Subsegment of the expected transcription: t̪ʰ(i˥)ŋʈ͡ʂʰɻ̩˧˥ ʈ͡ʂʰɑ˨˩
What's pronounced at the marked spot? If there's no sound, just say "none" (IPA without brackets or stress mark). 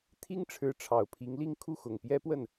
i˥